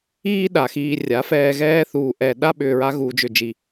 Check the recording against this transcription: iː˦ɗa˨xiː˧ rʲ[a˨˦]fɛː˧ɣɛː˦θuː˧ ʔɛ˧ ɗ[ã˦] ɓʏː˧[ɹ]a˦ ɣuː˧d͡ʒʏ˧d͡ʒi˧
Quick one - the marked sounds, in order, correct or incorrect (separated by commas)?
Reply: correct, incorrect, correct